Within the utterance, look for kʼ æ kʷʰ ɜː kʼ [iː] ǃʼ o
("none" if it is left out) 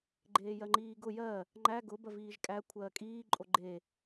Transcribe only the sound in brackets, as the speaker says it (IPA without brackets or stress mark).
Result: iː